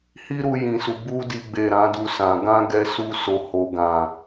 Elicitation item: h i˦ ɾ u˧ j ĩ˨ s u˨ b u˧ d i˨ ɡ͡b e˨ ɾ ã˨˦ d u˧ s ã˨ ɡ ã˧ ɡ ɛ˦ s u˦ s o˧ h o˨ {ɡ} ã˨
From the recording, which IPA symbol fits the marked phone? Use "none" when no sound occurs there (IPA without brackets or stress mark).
ɡ